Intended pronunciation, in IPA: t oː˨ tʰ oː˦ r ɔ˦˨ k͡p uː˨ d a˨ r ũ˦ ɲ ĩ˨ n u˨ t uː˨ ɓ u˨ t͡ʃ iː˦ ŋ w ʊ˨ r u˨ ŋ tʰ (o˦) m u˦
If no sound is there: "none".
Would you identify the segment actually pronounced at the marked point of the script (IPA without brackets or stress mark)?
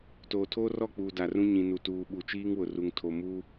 o˨